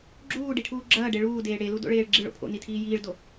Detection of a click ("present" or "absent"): present